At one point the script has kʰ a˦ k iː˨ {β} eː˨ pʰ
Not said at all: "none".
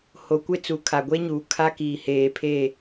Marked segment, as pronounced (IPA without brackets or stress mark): h